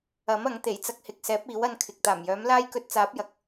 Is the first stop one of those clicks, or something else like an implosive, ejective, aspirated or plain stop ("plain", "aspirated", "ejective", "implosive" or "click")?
plain